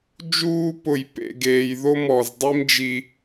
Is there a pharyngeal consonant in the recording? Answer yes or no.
no